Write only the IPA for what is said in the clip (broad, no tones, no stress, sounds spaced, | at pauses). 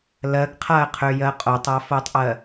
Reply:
l ɜ ɡ qʰ a ə̯ qʰ ø j ɜ qʼ o tˤ a f o tˤ ʔ ɜ